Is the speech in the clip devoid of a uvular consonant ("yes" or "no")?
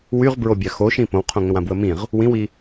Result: no